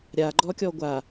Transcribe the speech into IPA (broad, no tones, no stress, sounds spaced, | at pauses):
ɾʲ a ɡ͡ǃ ɔ kʲ ɔ ɡʷ a